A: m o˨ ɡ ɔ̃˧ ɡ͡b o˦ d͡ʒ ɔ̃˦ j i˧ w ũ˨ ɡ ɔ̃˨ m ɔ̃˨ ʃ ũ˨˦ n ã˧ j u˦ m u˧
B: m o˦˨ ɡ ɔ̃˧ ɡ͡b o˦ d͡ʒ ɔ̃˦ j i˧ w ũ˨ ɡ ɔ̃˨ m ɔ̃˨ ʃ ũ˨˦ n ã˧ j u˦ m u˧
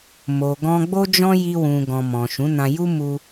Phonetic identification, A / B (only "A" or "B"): A